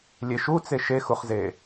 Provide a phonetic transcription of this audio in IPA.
lʲeʃut͡se ʃexuχze

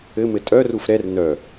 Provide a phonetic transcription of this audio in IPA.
ɘmɘ tʼœruf ɾɛr nœ

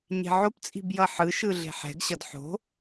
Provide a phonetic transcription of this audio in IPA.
ɲe̤ʕopt͡sʼi̤b jʌħɯʃɯ ɮe̤ħɛ̤ɡɕʌd ħo̤

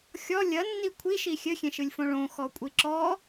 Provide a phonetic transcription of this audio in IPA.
xʲɔ lʲɐnːi kʷʰiʃi xʲɘxʲẽʃɨlʲfõ ɭõxɔkʷʼi ǁɔ

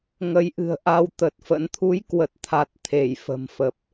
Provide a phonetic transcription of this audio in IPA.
ŋə˨˦jʔɨ̤˨˩ə̯ ʔa˧wt̪ə˨˩t̚fə̰˧˥n t̪ʰu˨˦jkwə˨˩t̚t̪ʰa˨˩t̚ t̪ʰe˧˩jfə̤˨˩mfə˨˩p̚

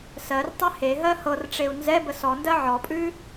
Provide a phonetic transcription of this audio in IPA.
sɜrtˤɛ heɦɜ hɤrʈ͡ʂeu̯ nzɛ bəsɔndɜ ʕɔpʼʉ

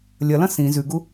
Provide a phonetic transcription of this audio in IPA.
lʲɐlɐ̃ sĩ zʉɡu

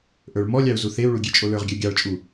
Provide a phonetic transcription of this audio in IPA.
ʔə˞ɭmɔlʲɑu̯ zuθeu̯ɭu ɡʲet͡ʃʼolə˞ʁɡʲɜ ɡʲɑɭt͡ʃʼu

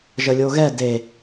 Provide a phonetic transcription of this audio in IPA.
ʒəlʲoɣɛ de

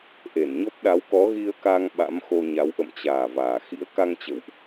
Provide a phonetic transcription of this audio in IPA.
ʔe˧˩nɲɔ˦˥p̚ ɗa˨˦wkɔ˨˦ ɣi˧ə̯ka˧ŋ ɓa̰˧˥mxo˧ɲa˨˦w ʔə̰˧˨mt͡ɕaː˨˩ vaː˨˩ xḭ˧˥ə̯ka˧ŋ t͡ɕə̰˧˨wʔ

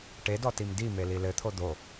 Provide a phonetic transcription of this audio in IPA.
ʈedɔtim dimeli lɘt̪ʰo d̪o

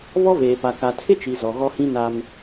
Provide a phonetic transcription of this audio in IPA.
βɔ˦veː˨pa˨ ka˨tʰɪ˦t͡ʃi˨ zɔ˨ɣɔ˦hĩ˦ na˦m

